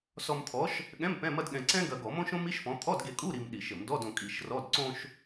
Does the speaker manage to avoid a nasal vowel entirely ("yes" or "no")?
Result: no